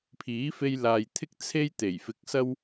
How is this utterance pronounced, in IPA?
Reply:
pʰ iː˨˥ f e˧ j l aː˨ j t̪ʰ ɪ˥ k̚ t͡sʰ e˥ j t̪ e˨˩ j f ɪ˧ k̚ s ɐ˥ w

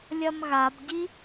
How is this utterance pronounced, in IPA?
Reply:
lʲ ɐ m ɣ a b ɟ i

